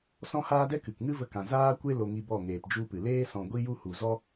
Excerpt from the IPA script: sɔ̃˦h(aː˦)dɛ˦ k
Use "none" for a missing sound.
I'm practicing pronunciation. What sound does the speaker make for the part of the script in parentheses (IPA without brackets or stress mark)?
aː˦